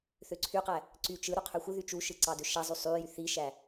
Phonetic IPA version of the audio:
θøǀʰyqæ | ǀy t͡ʃɯ ɾuqʰøxʷɯðy t͡ʃuʃɯ ǀɑdøʃæzˤy sˤyjy θiʃæ

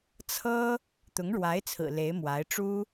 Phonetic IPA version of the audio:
t͡sʰɤ˥ | t̪ʊ˧˥ŋɻwa˧˥ɪ̯t͡sʰɹ̩˨˩ le˧˥ɪ̯mwa˧˥ɪ̯ ʈ͡ʂu˥

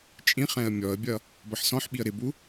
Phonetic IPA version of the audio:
t͡ʃʼĩχɛ̃ə̯ mʲɔə̯bʲʌ | bʌħsɔ̃ħɓiə̯ ɾɪbu

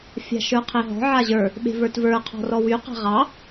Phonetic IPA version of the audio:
fʲa̤ʃə˞qʰeɦɔ̤ ʕaʑə˞ | ɓe̤və˞tvə˞ qʰɔ̤rɔwy qa̤ʁɑ

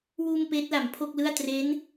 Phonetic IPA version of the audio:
wuː˧m peː˦˥t̚la˩˦mpʰo˥˩k̚lɯ˥˩a̯ tre˦˥n

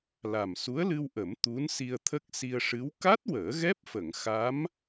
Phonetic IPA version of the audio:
la˨˩msu˧˥ə̯lɨ˧wʔə˨˩˦m t̪u˧˥n si˧ə̯t̪ʰə˦˥k̚ si˧ə̯ ʂɨ˧˥w ka˦˥t̚wəː˨˩˦ ɣɛ˦˥p̚fə˨˩˨ŋ xa˧˥m

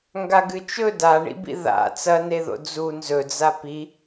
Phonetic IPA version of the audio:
ŋɡaɡɨt͡ʃɵ daɳḭbḭ ða̰ t͡sɐneðo̰ d͡zu nzɵd͡za pi

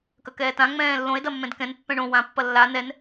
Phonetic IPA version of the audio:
kɐkɛːtã ŋ͡mɛ̃ːlːõe̯ dɐmːɛ̃dkɛ̃n pːɛ̃ɳõ wã pːɐlːa nɛn

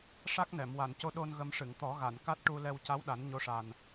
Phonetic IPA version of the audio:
ʂa˦˥k̚nɛ˨˩˨m wa˨˩˨nco˧ɗo˧n ɣə˧mʂɨ˨˩˨ŋ t̪ɔ˨˩˦ɣa˨˩˨nka˦˥t̚ʈu˧ lɛ˧wca˧˥wɗa˨˩˦n ɲo˧˥ʂa˨˩n

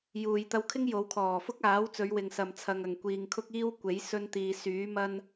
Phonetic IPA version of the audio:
juː˨jt̪ɐ˧wkʰɪ˥ŋ jo˨˧wkʰɔː˨˩fʊ˥k̚ aː˨˥w t͡sɵ˨˧ɥwɪ˨ŋsɐ˨m t͡sʰɐ˨ŋɐ˨˩ŋkʷiː˨ŋ kʰʊ˥k̚iː˥wkʷe˨˥j sɵ˥n t̪iː˨syː˨˥ mɐ˥n

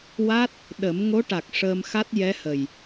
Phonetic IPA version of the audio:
wa˦˥t̚ | ɗə˨˩˦m ŋo˧˥ʈa˨˩k̚ ʂəː˧mxa˦˥t̚ jɛ˧˥hə˨˩j

